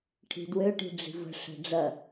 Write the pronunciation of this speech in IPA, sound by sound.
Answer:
ʈʰ i̤ d w ø ʈ i̤ ɖ͡ʐ i̤ v ə̤ ʂ ɛ̤ ɖ͡ʐ ɐ

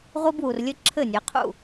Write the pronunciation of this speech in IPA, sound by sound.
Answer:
ʁʷ i˦ b w u˨ r lʲ ɘ˦ ǁʰ ɘ˦˨ nʲ ɛ˨˦ qʰ ṵ˦˨

